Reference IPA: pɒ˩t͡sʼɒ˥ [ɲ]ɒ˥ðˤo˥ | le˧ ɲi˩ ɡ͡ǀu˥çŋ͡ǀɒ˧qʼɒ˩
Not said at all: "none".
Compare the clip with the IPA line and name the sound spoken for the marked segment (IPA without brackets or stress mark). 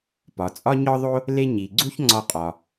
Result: ɲ